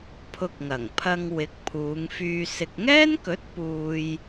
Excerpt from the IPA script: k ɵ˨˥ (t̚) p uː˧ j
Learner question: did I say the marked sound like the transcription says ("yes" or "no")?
yes